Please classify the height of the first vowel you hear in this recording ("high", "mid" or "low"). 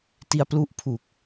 high